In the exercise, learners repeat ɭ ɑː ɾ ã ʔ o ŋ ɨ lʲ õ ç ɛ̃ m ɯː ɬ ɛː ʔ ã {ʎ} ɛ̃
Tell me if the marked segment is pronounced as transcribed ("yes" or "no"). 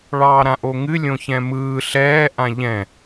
yes